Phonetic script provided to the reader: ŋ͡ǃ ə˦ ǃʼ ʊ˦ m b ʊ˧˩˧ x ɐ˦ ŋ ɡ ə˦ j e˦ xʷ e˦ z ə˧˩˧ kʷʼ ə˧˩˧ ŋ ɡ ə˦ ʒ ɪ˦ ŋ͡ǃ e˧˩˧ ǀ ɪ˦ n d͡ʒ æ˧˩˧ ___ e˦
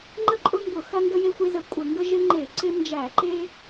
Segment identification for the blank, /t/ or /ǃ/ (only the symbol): ǃ